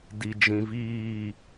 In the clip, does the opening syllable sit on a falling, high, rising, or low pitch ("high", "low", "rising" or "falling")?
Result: low